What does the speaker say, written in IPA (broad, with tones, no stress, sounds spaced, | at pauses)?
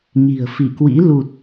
ɲ i̤˨˩ ə̯ f i˧˩ k w ḭ˧˥ l u˨˩ t̚